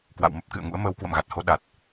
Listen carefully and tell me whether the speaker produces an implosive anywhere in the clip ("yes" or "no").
yes